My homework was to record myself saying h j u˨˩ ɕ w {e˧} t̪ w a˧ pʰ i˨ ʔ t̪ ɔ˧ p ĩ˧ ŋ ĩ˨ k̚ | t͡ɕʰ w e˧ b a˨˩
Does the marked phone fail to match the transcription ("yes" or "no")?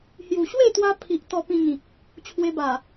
yes